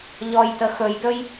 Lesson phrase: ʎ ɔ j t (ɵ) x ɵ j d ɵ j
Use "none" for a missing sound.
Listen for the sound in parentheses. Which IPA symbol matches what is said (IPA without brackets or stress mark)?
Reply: ə